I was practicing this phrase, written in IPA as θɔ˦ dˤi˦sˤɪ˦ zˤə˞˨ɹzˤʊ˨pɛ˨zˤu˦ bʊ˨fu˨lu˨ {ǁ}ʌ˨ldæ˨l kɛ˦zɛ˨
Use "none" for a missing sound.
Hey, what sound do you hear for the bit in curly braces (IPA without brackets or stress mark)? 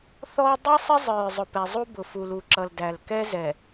ǁ